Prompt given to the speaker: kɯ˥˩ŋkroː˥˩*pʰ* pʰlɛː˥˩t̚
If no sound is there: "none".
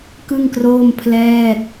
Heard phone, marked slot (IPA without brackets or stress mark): m